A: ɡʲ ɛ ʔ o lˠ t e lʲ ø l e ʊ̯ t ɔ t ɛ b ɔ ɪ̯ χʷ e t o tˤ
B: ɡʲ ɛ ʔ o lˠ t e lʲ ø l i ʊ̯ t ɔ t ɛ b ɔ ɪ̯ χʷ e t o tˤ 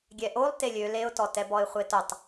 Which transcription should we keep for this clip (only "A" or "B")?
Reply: A